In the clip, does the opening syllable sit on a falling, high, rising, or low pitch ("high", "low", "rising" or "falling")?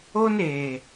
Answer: high